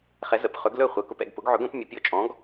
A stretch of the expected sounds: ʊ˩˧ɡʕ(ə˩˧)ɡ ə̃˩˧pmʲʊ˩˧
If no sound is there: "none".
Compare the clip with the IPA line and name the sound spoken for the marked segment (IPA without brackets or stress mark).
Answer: ɵ˩˧